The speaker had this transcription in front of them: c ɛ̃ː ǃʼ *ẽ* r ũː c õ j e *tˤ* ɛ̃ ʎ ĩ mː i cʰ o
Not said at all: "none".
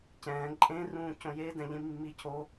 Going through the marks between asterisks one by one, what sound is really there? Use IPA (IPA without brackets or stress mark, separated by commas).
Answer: ẽ, d